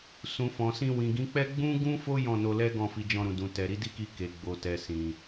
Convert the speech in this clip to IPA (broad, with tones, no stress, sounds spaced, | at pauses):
s ũ˨ f ɔ̃˨ s ĩ˧ w ĩ˨ ɡ ĩ˨˦ k͡p ɛ˦ ɡ͡b ũ˦ ɡ ũ˦ f o˦ j ɔ̃˦˨ n o˧ l ɛ˦ ɡ ɔ̃˦˨ f i˧ d͡ʒ ɔ̃˧ ɾ ũ˨ d ũ˨ t ɛ˨ ɾ i˨˦ d i˦ k i˧ k e˨ ɡ͡b o˨ t ɛ˨ s ĩ˨